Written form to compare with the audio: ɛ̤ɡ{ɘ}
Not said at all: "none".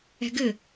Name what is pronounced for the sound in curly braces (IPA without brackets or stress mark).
ɘ